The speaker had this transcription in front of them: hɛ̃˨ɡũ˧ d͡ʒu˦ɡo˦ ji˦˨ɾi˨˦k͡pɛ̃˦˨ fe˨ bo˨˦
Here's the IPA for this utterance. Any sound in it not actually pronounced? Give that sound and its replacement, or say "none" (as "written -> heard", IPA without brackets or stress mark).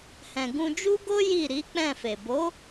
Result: none